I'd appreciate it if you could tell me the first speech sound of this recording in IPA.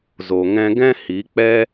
z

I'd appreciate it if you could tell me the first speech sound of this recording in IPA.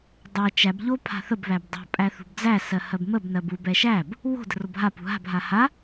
dˤ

